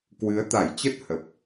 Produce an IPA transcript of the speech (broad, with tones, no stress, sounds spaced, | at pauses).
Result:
k w ɨ˨˦ ə̯ t̪ a˧˩ j t͡ɕ ə˦˥ t̚ h ə˨˩ p̚